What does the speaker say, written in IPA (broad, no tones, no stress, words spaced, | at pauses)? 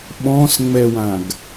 ɓɔ̃sŋ͡mɛwãɡ